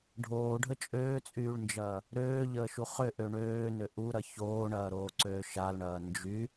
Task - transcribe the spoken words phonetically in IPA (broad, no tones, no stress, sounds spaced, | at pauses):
ɖʱ oː ɖʱ ə t͡ʃʼ øː t͡sʼ yː ɭ n d͡ʒ ɐː | ɾ øː ʎ əː ʃ u χ ʏ ʔ ø ɳ øː n ʏ ʔ u ɾ ɐ ç oː ɳ ɐː ɾ oː ǀ øː ʃ a l ɳ ɐː n d͡ʒ y